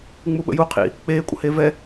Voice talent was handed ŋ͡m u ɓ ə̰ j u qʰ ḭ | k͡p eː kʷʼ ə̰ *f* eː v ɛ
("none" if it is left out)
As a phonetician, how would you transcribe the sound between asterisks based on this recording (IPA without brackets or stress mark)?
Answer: h